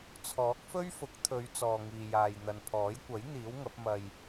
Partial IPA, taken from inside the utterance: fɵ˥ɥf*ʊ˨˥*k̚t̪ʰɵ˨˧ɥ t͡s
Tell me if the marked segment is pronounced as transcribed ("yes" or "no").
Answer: yes